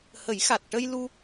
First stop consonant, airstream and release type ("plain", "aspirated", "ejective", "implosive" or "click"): plain